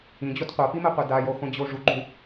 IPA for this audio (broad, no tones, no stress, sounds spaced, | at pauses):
ĩ d͡ʑ o t qʷ a p i m ɛ qʷ ɛ d a j o χʷ ĩ d͡ʑ o ʐ u ɡ͡ǃ ũ